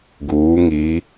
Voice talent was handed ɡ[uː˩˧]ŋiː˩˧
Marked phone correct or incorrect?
correct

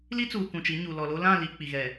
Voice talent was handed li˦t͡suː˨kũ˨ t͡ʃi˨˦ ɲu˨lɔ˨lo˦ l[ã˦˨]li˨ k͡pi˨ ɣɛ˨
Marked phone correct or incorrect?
correct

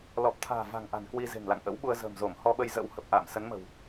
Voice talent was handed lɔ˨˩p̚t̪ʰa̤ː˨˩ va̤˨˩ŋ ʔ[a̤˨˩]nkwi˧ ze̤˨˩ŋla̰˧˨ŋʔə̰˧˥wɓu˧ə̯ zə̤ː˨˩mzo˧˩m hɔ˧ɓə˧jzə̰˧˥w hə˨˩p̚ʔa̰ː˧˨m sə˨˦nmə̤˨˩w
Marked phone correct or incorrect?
correct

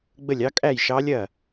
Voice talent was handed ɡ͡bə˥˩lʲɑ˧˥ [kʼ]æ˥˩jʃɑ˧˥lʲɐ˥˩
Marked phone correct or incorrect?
correct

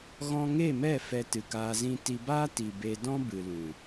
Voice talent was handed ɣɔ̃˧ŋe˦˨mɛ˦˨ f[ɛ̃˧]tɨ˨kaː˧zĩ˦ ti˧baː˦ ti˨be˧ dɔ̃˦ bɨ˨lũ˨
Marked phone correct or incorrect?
incorrect: ɛ˧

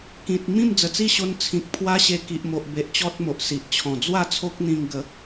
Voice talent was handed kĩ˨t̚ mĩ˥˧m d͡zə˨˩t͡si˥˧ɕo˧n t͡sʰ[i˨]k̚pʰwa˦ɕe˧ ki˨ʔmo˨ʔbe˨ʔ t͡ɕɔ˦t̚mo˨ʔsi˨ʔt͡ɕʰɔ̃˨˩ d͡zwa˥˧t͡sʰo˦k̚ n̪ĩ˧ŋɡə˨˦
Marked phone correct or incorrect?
incorrect: ĩ˨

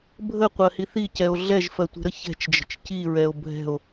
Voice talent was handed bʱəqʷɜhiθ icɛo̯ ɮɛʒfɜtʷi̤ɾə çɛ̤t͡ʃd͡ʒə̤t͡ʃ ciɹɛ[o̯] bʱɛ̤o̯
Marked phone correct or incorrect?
correct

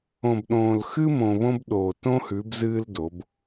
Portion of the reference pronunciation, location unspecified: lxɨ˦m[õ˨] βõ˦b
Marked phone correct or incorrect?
correct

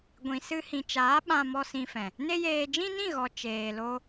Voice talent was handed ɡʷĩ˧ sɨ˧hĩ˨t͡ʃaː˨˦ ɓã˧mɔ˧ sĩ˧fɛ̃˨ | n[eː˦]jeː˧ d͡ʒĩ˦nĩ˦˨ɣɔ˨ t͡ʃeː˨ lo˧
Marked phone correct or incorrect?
incorrect: e˦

